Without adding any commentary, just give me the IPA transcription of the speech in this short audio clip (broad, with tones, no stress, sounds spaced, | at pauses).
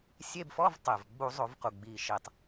sʲ e˧˥˧ b f ɔ˧˥˧ v tˤ e˩ v ɡ͡b u˧˩˧ zˤ o˧˩˧ v q u˩ ɡ͡b iː˩ ʃ iː˩ tˤ